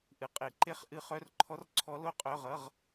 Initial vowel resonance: oral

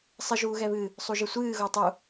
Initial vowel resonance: oral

